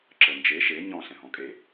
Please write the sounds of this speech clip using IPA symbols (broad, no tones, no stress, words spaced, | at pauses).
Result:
ǁɤnd͡ʒe ʃe ɲɔ̃ ɬɛ̃ɦɔ̃kʼe